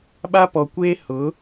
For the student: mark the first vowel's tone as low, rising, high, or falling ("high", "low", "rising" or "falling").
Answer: high